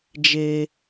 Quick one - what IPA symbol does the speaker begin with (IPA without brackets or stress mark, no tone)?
d͡ʒ